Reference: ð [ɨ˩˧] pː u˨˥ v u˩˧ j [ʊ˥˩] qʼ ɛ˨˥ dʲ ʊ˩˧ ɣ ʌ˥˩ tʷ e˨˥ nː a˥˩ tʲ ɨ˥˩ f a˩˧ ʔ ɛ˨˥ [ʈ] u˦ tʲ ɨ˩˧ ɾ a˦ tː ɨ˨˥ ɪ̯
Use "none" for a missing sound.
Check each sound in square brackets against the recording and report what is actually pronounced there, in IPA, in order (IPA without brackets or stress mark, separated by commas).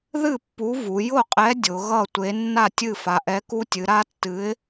ɨ˥˩, ʊ˥˩, k